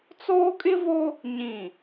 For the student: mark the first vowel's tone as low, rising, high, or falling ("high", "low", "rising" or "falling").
high